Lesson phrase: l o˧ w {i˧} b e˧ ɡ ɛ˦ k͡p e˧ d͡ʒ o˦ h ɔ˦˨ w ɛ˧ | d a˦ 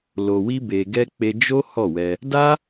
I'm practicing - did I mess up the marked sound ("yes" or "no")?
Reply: yes